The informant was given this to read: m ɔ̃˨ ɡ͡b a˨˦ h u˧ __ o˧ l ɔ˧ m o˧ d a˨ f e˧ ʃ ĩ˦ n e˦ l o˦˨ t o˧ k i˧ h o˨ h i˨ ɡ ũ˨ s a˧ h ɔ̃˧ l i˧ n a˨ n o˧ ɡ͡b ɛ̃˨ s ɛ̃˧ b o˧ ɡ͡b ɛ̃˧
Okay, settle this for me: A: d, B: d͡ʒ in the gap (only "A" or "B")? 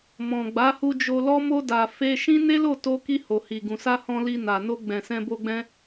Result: B